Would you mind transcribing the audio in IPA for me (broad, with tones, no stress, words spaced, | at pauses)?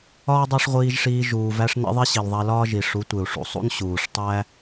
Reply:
ɒː˦dˤæ˦ʂʁʷiː˧ʒʂiː˧ ʒuː˨væ˧ʂ nḛ˦ðˤi˦ ɕi˨lðˤæ˧lɒː˦ ʒi˨ ʂu˨˦tʷe˨u̯ ʂṵ˨sˤṵ˦n ɕuː˨ʂtˤæ˦